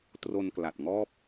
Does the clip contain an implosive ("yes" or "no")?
no